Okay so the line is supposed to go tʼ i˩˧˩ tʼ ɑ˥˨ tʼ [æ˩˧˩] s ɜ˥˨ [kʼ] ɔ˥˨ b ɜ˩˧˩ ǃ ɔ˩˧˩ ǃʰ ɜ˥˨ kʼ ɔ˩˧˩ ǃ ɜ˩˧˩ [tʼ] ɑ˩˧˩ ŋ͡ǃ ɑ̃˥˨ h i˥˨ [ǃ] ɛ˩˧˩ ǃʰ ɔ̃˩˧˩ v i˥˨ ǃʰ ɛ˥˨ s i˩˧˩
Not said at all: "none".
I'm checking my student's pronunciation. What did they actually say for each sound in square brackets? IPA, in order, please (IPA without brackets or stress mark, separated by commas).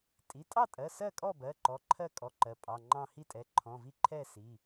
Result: ɜ˩˧˩, kʼ, pʼ, tʼ